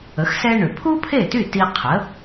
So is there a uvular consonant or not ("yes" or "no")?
yes